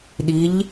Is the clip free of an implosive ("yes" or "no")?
no